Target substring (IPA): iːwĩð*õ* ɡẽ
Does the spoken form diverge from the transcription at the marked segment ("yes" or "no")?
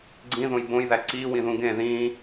yes